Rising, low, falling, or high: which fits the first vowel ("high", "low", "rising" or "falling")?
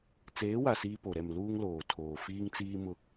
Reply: rising